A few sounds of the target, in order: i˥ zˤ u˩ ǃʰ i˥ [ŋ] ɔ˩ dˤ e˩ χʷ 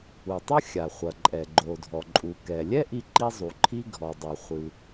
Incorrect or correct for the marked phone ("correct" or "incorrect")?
incorrect